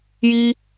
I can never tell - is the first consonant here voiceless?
no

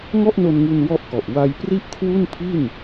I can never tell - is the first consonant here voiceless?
no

